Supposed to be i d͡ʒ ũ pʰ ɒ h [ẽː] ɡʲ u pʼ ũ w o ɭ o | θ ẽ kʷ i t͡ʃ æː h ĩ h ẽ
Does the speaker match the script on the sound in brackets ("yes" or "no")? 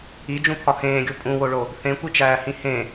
yes